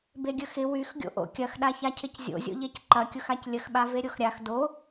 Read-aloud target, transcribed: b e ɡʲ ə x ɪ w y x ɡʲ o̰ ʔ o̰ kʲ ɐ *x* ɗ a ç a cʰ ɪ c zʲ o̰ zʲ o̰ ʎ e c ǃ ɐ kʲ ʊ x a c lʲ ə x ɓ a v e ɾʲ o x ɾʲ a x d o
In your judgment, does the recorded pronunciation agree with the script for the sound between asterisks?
yes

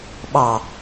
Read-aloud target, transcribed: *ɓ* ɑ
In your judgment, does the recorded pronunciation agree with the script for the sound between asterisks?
yes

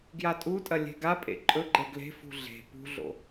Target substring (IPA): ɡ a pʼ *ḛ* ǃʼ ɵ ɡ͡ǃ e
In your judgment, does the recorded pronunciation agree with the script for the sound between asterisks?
yes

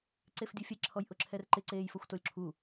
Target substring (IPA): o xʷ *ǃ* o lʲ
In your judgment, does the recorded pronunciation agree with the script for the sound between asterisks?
no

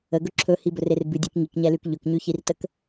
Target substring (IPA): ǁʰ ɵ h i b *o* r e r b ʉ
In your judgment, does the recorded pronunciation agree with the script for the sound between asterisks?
no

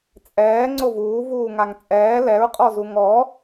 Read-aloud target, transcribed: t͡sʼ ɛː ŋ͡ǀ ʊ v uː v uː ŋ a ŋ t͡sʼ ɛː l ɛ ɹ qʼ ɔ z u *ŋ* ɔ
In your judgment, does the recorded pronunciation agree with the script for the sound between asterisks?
yes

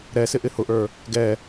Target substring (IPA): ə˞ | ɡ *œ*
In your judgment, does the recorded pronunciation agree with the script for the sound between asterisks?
no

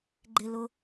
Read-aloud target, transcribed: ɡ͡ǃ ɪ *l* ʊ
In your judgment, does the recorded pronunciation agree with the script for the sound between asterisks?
yes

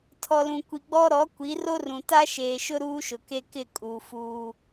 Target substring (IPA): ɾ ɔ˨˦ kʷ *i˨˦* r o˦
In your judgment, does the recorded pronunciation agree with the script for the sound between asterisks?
yes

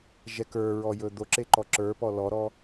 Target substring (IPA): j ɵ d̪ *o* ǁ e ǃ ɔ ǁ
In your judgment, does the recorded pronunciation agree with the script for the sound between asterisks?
yes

